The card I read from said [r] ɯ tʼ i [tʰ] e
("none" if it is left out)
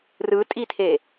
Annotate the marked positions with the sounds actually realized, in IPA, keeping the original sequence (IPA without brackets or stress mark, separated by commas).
r, tʰ